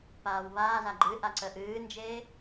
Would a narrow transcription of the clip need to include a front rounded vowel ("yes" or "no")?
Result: no